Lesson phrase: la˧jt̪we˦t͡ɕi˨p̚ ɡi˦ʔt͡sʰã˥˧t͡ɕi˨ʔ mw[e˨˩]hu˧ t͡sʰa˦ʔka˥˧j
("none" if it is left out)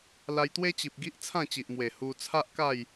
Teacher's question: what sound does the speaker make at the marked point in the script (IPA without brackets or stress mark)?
e˨˩